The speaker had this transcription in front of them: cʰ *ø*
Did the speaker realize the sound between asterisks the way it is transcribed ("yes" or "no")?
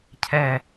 no